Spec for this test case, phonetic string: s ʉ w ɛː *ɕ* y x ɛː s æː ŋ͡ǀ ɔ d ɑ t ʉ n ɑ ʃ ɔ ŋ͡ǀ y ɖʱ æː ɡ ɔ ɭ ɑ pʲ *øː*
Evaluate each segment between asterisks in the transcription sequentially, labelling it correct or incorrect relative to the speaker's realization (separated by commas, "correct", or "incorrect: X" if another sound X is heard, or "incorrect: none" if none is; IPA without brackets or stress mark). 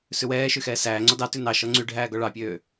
incorrect: ʃ, correct